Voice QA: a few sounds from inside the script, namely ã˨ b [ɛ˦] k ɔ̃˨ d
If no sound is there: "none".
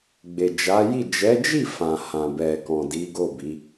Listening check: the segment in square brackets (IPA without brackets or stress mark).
ɛ˨